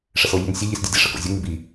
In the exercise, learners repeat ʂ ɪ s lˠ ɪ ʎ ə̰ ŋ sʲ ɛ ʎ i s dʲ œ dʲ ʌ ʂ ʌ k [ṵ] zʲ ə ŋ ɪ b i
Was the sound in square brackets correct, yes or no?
no